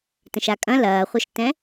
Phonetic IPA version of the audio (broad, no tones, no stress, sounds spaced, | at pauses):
t ə̃ ʃ a kʼ ɐ̃ l ɐː χʷ ɐ ʃ t ɛ̃